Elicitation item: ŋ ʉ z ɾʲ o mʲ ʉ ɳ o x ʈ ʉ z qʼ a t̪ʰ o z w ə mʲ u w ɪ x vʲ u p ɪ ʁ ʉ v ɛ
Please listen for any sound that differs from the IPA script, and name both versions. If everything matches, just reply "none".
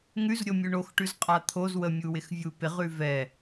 none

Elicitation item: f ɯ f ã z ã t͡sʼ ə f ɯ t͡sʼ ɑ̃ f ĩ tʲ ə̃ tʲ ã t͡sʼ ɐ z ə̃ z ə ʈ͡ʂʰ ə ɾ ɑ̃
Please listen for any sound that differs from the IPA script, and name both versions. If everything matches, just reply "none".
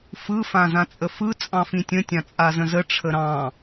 ɐ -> a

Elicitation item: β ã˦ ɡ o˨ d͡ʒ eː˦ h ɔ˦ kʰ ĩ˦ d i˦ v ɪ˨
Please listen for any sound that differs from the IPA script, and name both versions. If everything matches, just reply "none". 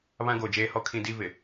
none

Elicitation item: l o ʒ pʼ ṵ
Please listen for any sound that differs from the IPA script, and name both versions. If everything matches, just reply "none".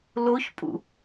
ʒ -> ç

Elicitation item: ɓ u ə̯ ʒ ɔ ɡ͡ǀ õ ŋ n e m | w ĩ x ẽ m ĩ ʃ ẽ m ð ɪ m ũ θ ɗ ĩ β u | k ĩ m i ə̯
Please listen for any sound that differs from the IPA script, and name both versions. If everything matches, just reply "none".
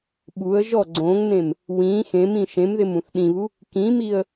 e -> ẽ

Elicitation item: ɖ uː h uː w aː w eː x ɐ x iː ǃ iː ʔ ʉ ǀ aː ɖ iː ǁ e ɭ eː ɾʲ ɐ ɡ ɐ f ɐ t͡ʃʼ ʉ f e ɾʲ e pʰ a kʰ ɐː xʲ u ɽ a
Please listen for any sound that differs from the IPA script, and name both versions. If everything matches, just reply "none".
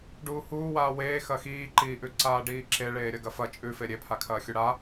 none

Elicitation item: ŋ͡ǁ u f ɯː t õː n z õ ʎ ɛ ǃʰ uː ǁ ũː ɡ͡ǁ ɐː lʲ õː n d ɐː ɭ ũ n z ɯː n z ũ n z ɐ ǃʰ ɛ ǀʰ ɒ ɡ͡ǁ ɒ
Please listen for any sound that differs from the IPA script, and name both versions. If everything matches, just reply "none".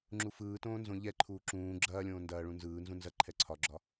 none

